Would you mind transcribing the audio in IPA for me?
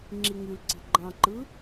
ŋ͡ǁ i ŋ y l ǀ i̤ ɡ͡ǃ ɑ̃ ǃ ɯ

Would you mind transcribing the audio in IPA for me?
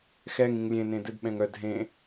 x ɛ ŋ ĩ ŋ lʲ ẽ n ẽ d ɘ d ɓ ɛ̃ ŋ œ d ɦ ẽ

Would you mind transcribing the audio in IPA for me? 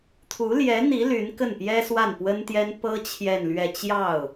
t̪ʰ u˧˥ l j ɛ˧˥ n̪ i˧˥ l y˧˥ n k ə˥˩ n p j ɛ˥ s w a˥˩ n p w ə˥ n t̪ j ɛ˥ n p ɤ˥ t͡ɕʰ j ɛ˥˧ n l ɥ ɛ˥˧ t͡ɕ j ɑ˥˩ ʊ̯

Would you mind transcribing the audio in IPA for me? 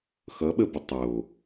x ʌ ɓ ə b ə tˤ o

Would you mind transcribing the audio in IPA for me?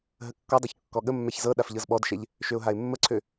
ɦ ə kː ɔ dˤ ɤ ç kː ɔ ɠ ə mː ɛ ç z ɤ ɗ a f ʎ ɤ z ɓ ɔ d ʃ ɛ ʎ | ʃ ø ʊ̯ ɦ a ɪ̯ mː ə ǀʰ ø

